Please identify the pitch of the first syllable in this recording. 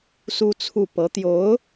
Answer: high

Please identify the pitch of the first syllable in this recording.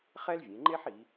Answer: high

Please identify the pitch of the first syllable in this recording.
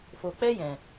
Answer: low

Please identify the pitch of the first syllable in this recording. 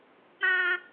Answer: high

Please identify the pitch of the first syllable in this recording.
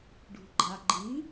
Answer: low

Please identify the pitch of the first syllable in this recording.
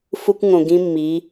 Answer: high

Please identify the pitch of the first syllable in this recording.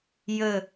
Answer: falling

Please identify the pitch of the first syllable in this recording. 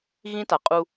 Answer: high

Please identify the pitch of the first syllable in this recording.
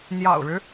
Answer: low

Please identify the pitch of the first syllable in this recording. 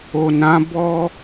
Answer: low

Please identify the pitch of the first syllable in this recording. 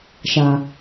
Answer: low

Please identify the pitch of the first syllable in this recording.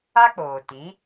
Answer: high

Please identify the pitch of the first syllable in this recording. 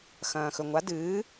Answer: low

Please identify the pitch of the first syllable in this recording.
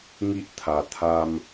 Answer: high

